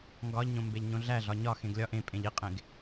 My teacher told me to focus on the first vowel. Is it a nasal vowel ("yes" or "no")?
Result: no